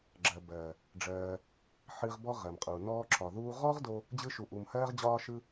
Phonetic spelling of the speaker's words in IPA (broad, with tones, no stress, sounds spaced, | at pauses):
ɡ͡ǁ ɜ˨ b ɜː˨ | ɖ͡ʐ ɜː˧ | ħ ɨ˧ ʁ b ɔ˦ ʁ ɜ˨ m qʼ u˨ n ɔː˦ ǁ ɒ˨ ð uː˧ ʁ ɔ˦ ʁ d o˧ | d͡ʑ ɯ˧ ʃ u˨ ʔ u˨ m h ɜː˧ ʁ d͡ʑ ɒː˧ ʃ ɯ˧